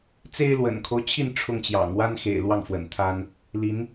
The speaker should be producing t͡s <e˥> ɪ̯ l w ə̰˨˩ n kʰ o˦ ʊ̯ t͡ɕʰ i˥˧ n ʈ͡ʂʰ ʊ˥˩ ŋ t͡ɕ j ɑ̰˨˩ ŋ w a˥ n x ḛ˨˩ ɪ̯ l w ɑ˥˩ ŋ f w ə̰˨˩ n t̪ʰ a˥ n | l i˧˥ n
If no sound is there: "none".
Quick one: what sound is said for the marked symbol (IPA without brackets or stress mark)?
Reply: e˥